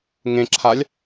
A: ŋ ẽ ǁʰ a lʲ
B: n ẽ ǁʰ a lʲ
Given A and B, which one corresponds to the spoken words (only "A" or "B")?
A